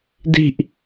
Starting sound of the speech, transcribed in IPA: d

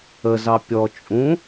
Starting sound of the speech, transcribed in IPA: ə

